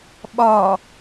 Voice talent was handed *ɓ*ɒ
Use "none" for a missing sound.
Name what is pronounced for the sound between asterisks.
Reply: ɓ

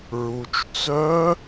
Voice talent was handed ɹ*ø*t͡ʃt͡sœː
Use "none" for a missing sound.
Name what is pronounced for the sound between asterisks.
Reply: u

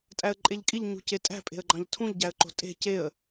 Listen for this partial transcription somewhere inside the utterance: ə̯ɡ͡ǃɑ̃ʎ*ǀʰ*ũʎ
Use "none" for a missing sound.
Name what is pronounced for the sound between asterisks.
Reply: tʰ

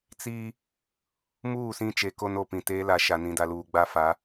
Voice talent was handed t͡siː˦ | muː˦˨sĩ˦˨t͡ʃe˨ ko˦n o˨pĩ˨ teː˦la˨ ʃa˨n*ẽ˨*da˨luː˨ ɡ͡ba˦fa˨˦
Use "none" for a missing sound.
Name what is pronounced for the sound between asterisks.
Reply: ĩ˨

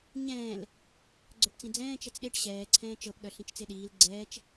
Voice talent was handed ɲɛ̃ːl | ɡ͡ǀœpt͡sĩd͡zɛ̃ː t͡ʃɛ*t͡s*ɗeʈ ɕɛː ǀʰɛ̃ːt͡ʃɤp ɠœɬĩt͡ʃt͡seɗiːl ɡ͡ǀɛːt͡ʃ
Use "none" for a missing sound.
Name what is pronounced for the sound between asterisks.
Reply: t͡s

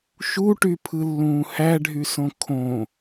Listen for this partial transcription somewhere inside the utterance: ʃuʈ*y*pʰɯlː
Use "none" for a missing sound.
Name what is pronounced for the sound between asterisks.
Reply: y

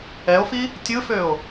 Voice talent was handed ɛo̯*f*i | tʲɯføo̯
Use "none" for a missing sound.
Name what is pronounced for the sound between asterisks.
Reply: f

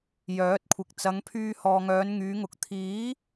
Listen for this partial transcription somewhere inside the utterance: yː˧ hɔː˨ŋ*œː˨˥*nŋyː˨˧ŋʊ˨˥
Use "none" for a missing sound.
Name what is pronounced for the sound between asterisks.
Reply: œː˨˧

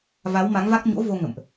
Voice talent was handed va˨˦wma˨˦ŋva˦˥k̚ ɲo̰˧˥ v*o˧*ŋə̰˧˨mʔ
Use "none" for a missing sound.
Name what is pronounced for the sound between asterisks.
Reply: o˧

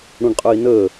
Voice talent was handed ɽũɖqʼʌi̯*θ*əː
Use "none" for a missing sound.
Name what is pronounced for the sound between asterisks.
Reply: n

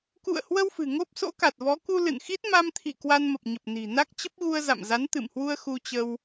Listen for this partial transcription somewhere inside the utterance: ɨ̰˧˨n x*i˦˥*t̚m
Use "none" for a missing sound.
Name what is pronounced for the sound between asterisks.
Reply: i˦˥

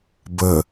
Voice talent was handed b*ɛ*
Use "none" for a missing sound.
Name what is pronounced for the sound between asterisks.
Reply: ə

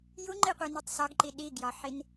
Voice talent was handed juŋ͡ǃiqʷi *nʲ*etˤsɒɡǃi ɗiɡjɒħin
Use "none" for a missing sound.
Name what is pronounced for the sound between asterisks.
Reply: n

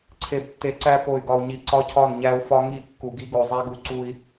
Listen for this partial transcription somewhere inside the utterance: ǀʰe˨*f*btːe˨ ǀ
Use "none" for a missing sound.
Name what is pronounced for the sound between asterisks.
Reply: none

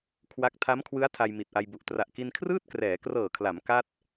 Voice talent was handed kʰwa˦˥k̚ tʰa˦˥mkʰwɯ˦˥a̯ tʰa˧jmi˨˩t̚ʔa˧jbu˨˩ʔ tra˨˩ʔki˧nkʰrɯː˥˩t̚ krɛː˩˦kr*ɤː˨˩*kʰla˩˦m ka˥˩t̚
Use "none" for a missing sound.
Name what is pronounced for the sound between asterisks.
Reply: ɤː˨˩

